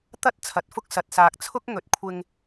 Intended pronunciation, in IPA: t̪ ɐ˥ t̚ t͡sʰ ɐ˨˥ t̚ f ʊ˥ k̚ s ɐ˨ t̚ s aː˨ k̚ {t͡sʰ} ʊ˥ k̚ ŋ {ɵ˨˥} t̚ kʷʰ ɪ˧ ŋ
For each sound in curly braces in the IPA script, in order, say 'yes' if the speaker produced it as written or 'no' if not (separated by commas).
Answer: yes, yes